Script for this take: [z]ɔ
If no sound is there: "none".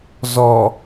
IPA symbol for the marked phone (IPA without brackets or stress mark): z